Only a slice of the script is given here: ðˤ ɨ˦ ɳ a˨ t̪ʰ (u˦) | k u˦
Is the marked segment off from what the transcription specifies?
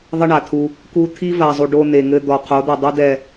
no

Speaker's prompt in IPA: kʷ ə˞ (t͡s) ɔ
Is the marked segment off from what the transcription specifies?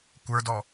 yes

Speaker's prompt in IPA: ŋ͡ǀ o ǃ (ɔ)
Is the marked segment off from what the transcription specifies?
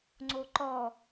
no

